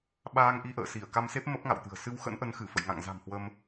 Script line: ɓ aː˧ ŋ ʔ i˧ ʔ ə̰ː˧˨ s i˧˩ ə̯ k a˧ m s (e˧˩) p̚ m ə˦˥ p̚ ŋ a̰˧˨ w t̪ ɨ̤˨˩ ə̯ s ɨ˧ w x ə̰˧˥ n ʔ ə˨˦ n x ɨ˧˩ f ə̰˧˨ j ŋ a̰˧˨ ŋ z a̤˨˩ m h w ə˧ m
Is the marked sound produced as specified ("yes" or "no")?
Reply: no